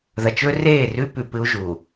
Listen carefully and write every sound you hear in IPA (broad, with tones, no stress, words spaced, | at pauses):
ðɐ˨t͡ʃɵ˦reː˦˨rʉ˦ pʉ˨pɨ˦u̯ ʒu˨